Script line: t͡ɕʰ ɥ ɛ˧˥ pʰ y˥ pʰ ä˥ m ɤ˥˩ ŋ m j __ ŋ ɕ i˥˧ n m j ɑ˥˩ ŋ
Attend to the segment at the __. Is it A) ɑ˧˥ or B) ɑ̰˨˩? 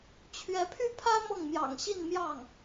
B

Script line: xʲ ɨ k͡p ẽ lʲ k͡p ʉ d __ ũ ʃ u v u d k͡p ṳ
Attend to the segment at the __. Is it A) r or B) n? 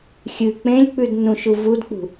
B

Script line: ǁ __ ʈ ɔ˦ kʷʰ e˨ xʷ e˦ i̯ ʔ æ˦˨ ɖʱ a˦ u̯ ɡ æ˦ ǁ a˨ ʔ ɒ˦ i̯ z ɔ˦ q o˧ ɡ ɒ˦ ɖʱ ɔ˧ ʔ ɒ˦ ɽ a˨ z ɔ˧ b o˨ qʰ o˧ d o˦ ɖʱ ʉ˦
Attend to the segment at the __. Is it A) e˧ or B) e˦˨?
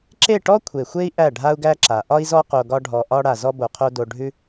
B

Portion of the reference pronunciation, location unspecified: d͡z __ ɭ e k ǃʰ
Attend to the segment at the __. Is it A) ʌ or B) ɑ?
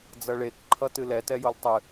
A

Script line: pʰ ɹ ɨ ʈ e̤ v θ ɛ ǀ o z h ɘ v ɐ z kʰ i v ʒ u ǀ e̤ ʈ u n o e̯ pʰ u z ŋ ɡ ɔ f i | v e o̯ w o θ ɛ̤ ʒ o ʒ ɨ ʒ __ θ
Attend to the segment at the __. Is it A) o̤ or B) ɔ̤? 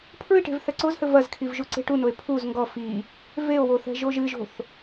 A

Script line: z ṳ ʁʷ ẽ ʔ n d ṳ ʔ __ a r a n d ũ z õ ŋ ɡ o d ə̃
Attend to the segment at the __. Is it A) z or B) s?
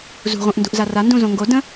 A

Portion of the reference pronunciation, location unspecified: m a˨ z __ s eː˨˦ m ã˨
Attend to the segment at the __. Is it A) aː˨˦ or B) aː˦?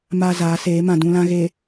A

